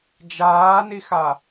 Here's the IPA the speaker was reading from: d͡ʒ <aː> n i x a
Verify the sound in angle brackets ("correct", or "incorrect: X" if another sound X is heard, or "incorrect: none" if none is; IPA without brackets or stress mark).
correct